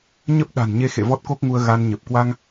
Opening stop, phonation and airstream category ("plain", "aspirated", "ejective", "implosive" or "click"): plain